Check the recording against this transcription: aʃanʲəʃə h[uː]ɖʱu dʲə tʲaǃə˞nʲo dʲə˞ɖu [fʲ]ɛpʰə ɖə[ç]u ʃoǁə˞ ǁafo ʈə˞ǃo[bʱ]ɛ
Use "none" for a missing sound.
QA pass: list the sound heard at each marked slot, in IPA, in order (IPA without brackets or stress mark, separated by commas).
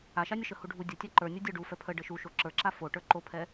u, f, ʃ, pʰ